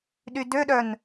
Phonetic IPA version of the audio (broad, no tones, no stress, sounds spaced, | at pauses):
ɗ y d ø ɗ œ n